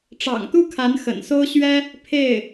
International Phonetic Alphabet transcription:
ʈ͡ʂɑ̰˨˩ŋt̪u˥˩ kʰa˧˥n xə̰˨˩nso˥ʊ̯ɕɥɛ˥ | pʰe˥˩ɪ̯

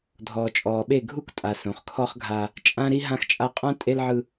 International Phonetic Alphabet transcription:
dʱɔː˨t͡ʃʼɔː˨ɓe˦˨ ɡʱu˦ktʼa˨ sõ˨χkʰɔ˦χɡʱa˦ | t͡ʃʼã˦ɾi˦ ɦã˦xt͡ʃʼa˦ qʼã˦ tʼe˦lʕɯ˦

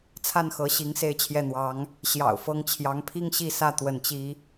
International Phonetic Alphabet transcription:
t͡sʰa˥˩nxɤ˧˥ ɕi˧˥ŋse˥˧ɪ̯t͡ɕʰjɛ˥˩n̪wɑ˧˥ŋ | ɕjɑ̰˨˩ʊ̯fɤ˧˥ŋt͡ɕʰjɑ˧˥ŋpʰi˥ŋ ɕi˥˧sä˥˧ t̪wə˥˩nt͡ɕi˥

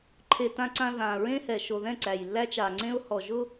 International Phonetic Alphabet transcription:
ǃʰe˨ tã˨ǀã˨ ðãː˨ɹẽ˦hɛ˨ ʃo˨ðɛ̃˦˨ ǀæ˨jlːæ˦t͡ʃa˨ŋ͡ǀẽ˦ʊ̯ hɔ˨ʒʊ˦

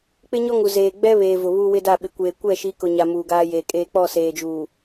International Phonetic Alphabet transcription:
k͡pɪ˦ɲɔ˦ŋu˨ zeː˨ɡ͡bɛ˦βeː˨ vʊ˨βu˦wɪ˦da˦˨ ɓɪ˨kʷeː˨kʷɛ˦˨ ʃi˨˦kʊ˨ɲa˨ muː˨ɡaː˦jeː˨kʼeː˦ k͡pɔ˦˨ seː˨d͡ʒuː˨

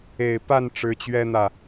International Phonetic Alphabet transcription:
e˨˩ɪ̯pa˥˩n ʈ͡ʂɻ̩˧˥t͡ɕɥɛ˥n̪ä˥˩

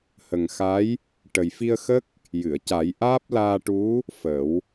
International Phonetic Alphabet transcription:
hə˨˩ŋxa˧˥j | ʈə˨˩jfi˧ə̯xə˦˥k̚ | jɨ˨˩˨ə̯ca˨˩˦j ʔaː˦˥p̚laː˧ʈu˧˥ | fə˨˩˦w

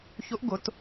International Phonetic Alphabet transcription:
çʊ˧˥ʔɡʊ˨˩˦t

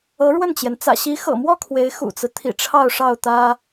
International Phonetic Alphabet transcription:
ɤ˧˥ɻwə˥˩nt͡ɕjɛ˩n t͡sä̰˨˩ ɕi˧˥xɤ̰˨˩mwɔ˥˩ kʰwe˧˥ɪ̯ xṵ˨˩t͡sɹ̩˦ t̪ʰḭ˨˩ʈ͡ʂʰɑ˥˧ʊ̯ʂɑ˥˩ʊ̯t̪ä˥

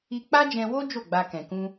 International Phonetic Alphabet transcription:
i˧k͡pa˦d͡ʒɛ̃˧wo˦ d͡ʒo˦˨ɡ͡ba˧kɛ̃˨kũ˧

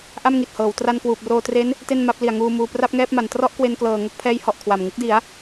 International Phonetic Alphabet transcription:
ʔa˥˩mŋi˨˩t̚hɤː˩˦w tra˧nkwuː˨˩p̚roː˧ tre˦˥n | te˥˩nma˦˥p̚ li˨˩a̯ŋuː˧ muː˧ pra˥˩p̚ŋɛː˥˩p̚ma˩˦n trɔ˥˩ʔkwe˧nklɤː˨˩ ŋo˥˩k̚pʰɛː˦˥jhɔ˨˩ʔ kʰwa˨˩m ŋɯ˦˥k̚di˩˦a̯

